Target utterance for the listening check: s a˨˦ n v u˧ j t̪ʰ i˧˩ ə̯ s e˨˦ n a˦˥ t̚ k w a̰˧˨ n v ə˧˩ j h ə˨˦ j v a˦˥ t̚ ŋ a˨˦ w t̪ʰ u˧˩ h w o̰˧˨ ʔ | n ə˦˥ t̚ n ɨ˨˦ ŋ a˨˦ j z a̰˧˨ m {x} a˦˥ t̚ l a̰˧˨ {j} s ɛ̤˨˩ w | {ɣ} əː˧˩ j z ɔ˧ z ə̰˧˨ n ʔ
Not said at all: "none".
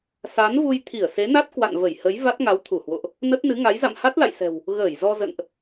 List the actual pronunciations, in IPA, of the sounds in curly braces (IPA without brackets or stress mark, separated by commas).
h, j, ɣ